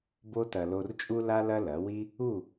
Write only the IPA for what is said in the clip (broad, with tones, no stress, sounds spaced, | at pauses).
b o˧ t ɐ˨ l o˨ r t͡ʃʼ u˧ l a˧ l ɐ˧ l ɐ˨˦ w i˦ | u˦˨